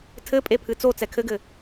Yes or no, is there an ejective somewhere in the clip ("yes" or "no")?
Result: yes